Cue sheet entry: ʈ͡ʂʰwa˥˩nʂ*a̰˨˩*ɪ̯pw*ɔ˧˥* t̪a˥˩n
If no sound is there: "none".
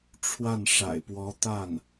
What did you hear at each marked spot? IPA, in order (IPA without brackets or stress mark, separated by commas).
a̰˨˩, ɔ˧˥